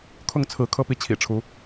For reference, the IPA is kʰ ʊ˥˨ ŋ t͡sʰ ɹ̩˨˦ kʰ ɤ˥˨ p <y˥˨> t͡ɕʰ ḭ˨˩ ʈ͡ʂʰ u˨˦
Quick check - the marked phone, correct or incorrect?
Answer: incorrect